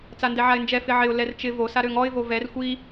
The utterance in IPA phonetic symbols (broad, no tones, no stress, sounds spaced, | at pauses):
t͡s a n d ɛ ʕ a ɪ̯ n d͡ʒ ɛ f ɪ ʕ ɪ ʊ̯ l ɛ r t͡ʃ ɪ v o s a ɾ ø ŋ ɔ ɪ̯ v o v ɛ r xʷ i